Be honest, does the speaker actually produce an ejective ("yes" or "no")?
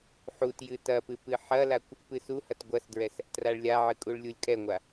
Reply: yes